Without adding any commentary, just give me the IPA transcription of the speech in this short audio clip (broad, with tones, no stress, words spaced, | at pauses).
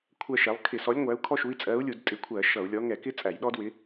kʷʰɜ˦ʃɛ˨˥lˠ kʰɪ˧˩˧sɔ˨˥lʲ ŋʷæ˨˥u̯kʰɔ˦ʃu˨˥i̯ t͡sʼɜ˨˥u̯lʲu˧˩˧dtʼɪ˨˥kʷʰɜ˧˩˧ ʃʌ˧˩˧u̯lʲɔ˨˥ ŋɛ˧˩˧kɪ˦ t͡sʼæ˧˩˧jɗɔ˦dwɪ˨˥